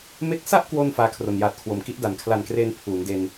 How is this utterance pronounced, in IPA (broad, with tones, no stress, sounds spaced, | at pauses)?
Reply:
m e˦˥ k̚ s a˥˩ ʔ k w o˧ n f aː˦˥ kʰ r o˨˩ n j aː˨˩ t̚ kʰ w o˨˩ m k i˦˥ ʔ d a˩˦ n kʰ l a˨˩ n k r eː˧ n pʰ uː˩˦ n d e˧ n